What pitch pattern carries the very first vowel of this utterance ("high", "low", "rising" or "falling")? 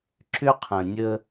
high